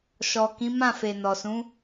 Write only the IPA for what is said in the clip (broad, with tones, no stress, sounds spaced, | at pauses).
ʃ ɔ˨ k ĩ˨˦ m ã˦˨ f e˨ n ɔ˨ s ũ˨˦